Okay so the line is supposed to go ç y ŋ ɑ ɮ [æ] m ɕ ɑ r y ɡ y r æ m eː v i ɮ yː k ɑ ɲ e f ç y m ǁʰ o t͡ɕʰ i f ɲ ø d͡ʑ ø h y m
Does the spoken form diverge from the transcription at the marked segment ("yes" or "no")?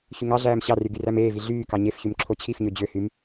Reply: yes